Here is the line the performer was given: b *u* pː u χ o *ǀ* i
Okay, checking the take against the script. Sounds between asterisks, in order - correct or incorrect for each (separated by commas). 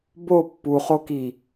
incorrect, incorrect